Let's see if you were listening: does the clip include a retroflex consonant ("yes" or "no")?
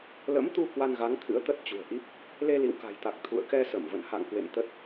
no